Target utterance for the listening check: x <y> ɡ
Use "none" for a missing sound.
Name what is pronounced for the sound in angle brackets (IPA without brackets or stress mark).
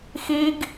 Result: i